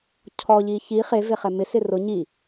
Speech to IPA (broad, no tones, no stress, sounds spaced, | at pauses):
cʰ ɔ ʎ i ç i χ e v e χ ɛ m ɪ s ɪ r ʊ ɲ i